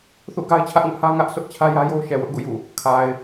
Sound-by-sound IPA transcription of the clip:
θ ṵ˦˨ ɡ a˦ ɪ̯ t͡ɕʰ ä˦ ʔ ŋ ʊ˦ ʔ h ä˦ ŋ ä˦ ʔ sʰ ʊ˦ ʔ t͡ɕʰ ä˦ j ä˦ j o˦ ʊ̯ ʃ ɛ˨ w ʊ˦ ʔ ɡ ṵ˦˨ j ṵ˦˨ | kʰ a˨ ɪ̯

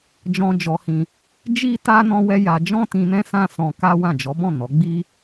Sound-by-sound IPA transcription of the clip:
d͡ʒ ɔ̃˧ d͡ʒ ɔ˧ h ĩ˧ | d͡ʒ i˦ t a˧ n ɔ̃˦ w ɛ˦ j a˧ d͡ʒ ɔ̃˦ t ĩ˧ n ɛ̃˦ s ã˦ s ɔ̃˧ k a˦ w ã˦˨ d͡ʒ ɔ˨˦ b ɔ̃˦˨ n ɔ˨˦ ɡ͡b i˦

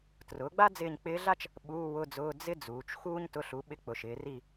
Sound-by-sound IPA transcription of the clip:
t r ʊː˩˥ ɡ͡b a˥ d͡z ɪː˦˨ ɲ k͡p ɪː˧˥ ɮ a˥ t͡ʃ | ɓ uː˧˥˧ w ʊ˧˥˧ d͡z ʊː˧˥˧ d͡z ɪ˥ d͡z uː˩˧ t͡ʃ x uː˥ ɲ t ʊ˧˥˧ ɬ u˩˥ ɓ ɪ˧˥ k͡p ʊ˩˧ ʃ ɪː˩˧ r i˦˨

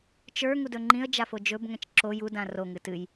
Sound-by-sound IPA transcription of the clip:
t͡ʃ ə˞ ŋ u d ɵ ŋ͡ǃ ĩ ə̯ d͡ʒ a f o d͡ʒ ɵ b ŋ ɛ̃ t͡ʃ ǁ o j u d ã r o ŋ ɨ t ɨ j

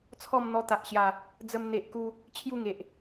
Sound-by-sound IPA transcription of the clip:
t͡sʰ ɔ˥˧ m n̪ ɔ˧ t̪ a˨ ʔ ɕ j a˨˩ | d͡z ə˧ m n̪ e˨ ʔ k u˧ | t͡ɕʰ j u˥˧ ŋ e˨ ʔ

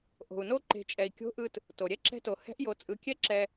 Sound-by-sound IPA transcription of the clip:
ʔ o̤˩ u̯ n o˧ ǃ e̤˩˧ t͡ʃʼ ɛ˩ i̯ kʲ o̤˧˥ ʔ ɯ˧ t | t o˩ ɾʲ ɛ˥ ǁ ɛ̤˧ t o˩ h ɛ̤˧˥ ʔ j o˩˧ t͡sʼ ɯ˩˧ kʲ ɛ˥ ǁ ɛ˧

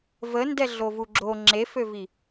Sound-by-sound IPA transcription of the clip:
v ə n d ɛ ɮ o v u ɡ͡ǁ o ŋ͡ǁ e f ø v i

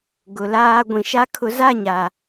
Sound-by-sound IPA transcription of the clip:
ɡ ʊ˨ l aː˦ ɡʷ ĩ˨ ʃ a˦ kʰ ʊ˨˦ z a˦˨ ɲ a˨

